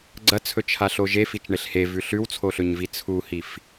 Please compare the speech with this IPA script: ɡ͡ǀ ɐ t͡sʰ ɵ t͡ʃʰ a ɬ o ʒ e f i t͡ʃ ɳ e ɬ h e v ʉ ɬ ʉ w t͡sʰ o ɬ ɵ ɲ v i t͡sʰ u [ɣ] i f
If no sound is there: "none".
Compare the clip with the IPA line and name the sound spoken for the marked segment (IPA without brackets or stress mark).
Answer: h